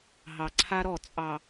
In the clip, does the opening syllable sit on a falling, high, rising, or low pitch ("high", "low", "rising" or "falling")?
low